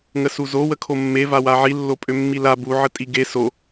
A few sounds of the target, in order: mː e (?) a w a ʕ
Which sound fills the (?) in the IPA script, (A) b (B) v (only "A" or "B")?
B